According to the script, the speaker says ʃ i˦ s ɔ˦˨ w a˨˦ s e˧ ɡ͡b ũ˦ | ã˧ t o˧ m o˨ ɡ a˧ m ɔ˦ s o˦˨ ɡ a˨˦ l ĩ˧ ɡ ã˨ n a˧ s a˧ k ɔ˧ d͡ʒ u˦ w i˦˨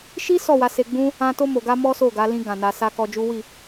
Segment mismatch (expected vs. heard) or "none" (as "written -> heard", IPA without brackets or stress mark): none